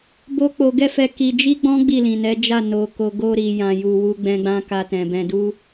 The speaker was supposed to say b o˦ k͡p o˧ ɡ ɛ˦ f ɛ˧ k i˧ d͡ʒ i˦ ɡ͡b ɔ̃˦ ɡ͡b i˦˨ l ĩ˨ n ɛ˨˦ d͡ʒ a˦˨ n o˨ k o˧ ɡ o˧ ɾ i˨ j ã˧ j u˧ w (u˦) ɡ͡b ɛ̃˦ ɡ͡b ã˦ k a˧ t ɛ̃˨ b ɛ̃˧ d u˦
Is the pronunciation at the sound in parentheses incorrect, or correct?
correct